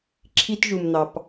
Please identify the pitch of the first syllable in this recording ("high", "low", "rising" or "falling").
high